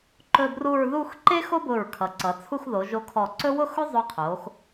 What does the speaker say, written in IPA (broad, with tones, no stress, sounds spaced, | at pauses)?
ǃ ɵ˥˧ b r u˥˧ ɹ ð u˥˧ x ǃ e˥ x o˥ b ʊ˧˩ ɹ kʰ ʌ˩˧ ǀ ʌ˩˧ t͡sʰ u˥˧ x ð o˩˧ ʒ o˧ kʰ ɔ˧˩ ǀ ɵ˥ w ʊ˥˧ x ʊ˥ zˤ ɵ˧ qʰ o˩˧ x